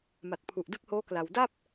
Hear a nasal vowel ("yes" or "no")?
no